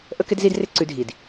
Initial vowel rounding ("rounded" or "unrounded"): unrounded